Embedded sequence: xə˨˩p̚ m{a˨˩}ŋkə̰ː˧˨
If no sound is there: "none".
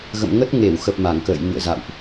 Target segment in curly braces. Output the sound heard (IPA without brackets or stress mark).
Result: a˧˩